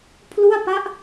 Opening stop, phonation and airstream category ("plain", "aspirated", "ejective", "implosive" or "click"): aspirated